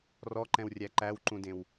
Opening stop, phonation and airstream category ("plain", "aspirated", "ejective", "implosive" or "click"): click